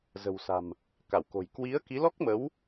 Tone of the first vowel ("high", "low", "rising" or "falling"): low